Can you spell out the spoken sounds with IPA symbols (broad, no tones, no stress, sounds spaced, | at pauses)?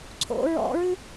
ǀʰ o̰ ɹ ɔ̰ ɹ ɨ